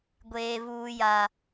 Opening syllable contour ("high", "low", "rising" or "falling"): high